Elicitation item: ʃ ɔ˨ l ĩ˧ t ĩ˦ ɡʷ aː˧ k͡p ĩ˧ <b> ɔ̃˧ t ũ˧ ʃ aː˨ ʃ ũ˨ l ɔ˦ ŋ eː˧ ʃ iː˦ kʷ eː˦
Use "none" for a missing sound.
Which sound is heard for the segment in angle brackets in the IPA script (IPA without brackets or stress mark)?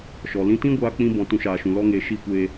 b